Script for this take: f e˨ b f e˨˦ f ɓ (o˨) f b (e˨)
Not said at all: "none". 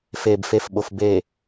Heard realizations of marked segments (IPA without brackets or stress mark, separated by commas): o˨, e˨